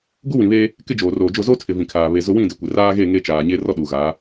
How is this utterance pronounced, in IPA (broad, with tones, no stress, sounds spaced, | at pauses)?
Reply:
ɡ u˦ w ĩ˨ β eː˦ | k ɪ˦ d͡ʒ oː˨ r oː˨ d͡ʒ ʊ˦˨ z o˦ tʰ ɪ˨ v ĩ˨ kʰ aː˨ β e˨ z ʊ˦ w ĩ˦˨ d ɪ˨˦ kʷ ɪ˨ r aː˦ ɣ e˦˨ ŋ e˦ t͡ʃ aː˨ ɲ e˦ r ɔ˦ ɗ u˨ ɣ aː˨˦